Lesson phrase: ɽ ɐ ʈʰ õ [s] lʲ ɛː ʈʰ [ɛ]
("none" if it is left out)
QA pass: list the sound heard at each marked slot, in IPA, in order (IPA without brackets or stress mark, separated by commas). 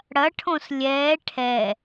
s, ɛ